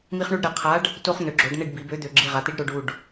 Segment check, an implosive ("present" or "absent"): absent